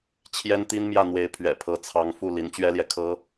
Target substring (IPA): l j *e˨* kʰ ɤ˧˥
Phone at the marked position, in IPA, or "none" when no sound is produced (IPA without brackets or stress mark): ɛ˨